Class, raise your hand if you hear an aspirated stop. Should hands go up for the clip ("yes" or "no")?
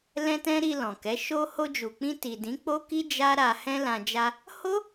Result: no